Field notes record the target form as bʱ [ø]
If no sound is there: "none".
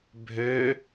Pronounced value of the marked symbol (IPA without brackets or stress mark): ø